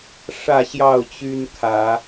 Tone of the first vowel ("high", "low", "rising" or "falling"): falling